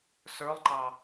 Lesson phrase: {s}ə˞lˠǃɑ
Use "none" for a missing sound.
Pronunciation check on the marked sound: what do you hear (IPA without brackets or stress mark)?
s